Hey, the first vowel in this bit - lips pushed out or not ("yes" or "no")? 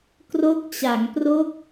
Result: yes